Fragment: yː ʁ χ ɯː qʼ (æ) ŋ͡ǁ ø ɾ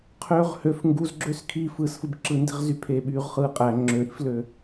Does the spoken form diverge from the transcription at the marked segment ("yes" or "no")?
no